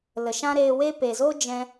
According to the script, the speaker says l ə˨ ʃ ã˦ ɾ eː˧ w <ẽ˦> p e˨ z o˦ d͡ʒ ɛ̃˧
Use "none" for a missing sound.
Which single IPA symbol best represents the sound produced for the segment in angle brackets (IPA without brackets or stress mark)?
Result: e˦